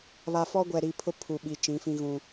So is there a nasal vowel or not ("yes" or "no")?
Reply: yes